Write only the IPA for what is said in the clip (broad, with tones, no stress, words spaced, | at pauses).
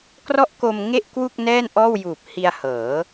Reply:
krɔ˦˥ʔko˧m ŋe˥˩ʔkwu˥˩k̚ nɛː˥˩nʔɔː˥˩w juː˨˩p̚hi˧a̯hɤː˩˦